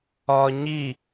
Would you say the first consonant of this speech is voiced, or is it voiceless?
voiced